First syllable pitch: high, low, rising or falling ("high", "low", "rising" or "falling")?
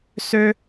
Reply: high